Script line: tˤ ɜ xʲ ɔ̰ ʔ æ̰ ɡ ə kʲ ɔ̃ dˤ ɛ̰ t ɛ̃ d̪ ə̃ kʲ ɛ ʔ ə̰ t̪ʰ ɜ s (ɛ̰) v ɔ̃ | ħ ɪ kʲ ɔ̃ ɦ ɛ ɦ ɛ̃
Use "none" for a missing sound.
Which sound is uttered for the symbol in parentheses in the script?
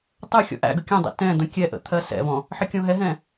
ɛ̰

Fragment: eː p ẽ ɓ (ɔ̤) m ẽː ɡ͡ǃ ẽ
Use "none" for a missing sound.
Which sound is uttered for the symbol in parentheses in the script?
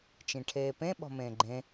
ɔ̤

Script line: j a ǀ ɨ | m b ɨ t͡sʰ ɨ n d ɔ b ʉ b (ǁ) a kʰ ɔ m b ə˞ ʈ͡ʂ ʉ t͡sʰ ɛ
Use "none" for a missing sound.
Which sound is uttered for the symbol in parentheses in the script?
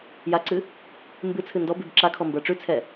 ǁ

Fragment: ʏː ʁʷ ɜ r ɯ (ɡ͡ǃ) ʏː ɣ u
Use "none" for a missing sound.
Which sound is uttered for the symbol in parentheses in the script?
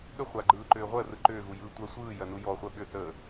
ǃ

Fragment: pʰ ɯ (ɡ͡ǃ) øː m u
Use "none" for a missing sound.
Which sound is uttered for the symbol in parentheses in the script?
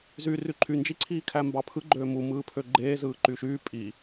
ɡ͡ǃ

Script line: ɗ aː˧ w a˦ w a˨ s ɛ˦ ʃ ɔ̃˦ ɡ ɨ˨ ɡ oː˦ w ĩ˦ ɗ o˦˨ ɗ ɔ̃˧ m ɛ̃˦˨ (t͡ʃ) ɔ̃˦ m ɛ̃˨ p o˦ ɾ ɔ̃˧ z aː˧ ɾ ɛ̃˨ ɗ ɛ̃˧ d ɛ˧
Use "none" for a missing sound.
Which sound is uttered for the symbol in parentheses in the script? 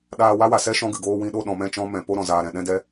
t͡ʃ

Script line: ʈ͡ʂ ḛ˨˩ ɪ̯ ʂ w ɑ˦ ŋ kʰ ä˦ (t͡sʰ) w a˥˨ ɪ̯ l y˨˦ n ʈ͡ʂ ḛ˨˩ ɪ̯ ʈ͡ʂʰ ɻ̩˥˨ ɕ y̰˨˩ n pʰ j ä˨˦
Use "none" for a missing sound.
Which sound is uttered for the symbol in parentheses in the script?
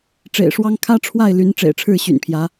ʈ͡ʂʰ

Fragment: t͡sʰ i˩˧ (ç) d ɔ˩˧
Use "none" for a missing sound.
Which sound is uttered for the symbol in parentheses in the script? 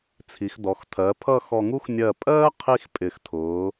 x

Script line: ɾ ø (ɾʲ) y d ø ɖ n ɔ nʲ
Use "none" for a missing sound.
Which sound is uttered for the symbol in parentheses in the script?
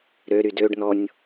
ɾ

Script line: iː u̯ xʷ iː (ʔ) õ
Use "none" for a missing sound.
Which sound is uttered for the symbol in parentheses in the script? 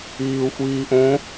ʔ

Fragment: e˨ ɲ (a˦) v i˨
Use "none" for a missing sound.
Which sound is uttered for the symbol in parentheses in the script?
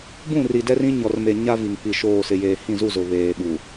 a˦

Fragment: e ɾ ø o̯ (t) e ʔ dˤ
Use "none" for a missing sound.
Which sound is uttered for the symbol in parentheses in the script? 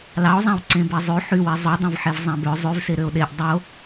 ɗ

